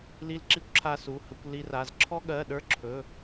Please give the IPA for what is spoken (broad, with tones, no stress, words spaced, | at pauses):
li˥lǁi˥kʷǁʰa˥ su˧˥˧hə˥kʷ li˥ra˧˥˧z ǁʰɔ˥ɠɜ˧˥˧ɗə˞˥ ǁʰɵ˧˥˧